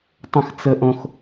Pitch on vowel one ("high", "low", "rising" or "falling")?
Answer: high